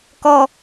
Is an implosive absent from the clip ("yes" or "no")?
yes